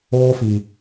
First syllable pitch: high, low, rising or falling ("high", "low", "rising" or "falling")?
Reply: high